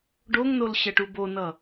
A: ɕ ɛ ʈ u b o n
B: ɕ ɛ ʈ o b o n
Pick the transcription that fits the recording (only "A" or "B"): A